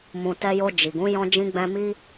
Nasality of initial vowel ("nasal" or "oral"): nasal